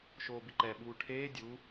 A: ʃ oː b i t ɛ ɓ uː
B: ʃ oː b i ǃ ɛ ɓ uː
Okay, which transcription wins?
B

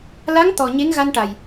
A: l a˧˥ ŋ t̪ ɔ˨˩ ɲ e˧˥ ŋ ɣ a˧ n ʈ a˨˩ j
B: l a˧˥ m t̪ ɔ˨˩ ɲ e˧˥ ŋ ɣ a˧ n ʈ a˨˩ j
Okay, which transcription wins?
A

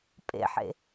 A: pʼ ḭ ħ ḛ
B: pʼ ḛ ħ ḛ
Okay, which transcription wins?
B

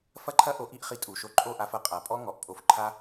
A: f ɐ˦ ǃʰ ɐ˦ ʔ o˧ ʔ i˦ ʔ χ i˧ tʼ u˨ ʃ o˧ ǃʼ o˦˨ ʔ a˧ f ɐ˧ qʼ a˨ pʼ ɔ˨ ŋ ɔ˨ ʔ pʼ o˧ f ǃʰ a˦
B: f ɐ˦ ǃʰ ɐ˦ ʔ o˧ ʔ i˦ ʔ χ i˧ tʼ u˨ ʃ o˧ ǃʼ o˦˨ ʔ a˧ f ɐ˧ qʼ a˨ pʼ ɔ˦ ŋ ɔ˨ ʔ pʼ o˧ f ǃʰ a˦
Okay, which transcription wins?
B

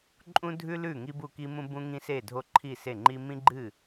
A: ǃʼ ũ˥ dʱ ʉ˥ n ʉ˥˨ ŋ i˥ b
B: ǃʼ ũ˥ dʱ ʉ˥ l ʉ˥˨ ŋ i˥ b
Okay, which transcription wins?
B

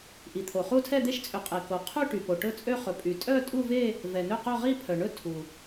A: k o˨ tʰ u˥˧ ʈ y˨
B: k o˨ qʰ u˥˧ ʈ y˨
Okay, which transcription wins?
B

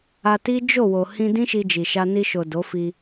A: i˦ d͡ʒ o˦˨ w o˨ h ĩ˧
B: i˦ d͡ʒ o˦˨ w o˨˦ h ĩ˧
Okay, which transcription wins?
A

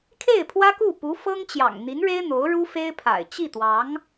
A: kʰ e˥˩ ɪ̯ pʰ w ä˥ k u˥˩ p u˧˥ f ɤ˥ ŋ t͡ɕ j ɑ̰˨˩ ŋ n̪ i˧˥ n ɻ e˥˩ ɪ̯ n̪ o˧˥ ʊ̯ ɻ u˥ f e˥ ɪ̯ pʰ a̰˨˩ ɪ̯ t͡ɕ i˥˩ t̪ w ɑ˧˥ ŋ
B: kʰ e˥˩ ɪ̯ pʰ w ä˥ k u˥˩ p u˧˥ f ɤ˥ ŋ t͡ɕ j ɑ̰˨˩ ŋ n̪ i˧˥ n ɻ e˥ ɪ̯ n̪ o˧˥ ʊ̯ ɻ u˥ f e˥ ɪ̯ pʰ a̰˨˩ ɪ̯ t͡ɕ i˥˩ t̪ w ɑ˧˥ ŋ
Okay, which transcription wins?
B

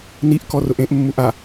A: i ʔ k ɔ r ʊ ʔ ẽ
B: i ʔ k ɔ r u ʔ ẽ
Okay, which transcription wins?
A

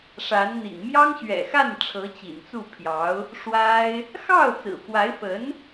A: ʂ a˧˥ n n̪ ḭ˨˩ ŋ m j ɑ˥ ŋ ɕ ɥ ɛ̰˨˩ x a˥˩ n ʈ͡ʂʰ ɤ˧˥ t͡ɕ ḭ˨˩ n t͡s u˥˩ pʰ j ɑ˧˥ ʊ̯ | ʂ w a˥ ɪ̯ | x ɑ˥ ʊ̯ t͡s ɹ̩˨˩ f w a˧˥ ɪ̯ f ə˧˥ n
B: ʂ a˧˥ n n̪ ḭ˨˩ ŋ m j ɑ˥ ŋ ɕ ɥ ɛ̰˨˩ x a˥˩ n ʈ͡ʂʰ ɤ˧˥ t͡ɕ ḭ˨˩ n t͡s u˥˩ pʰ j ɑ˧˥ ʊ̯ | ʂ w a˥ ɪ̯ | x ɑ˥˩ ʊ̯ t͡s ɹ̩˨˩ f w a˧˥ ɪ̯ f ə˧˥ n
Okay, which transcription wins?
B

